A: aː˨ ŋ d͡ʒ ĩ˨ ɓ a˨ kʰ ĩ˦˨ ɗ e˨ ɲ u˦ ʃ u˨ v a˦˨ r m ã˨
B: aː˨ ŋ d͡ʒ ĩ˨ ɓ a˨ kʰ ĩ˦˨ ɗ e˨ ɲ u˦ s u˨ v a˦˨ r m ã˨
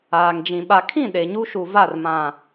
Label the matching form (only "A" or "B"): A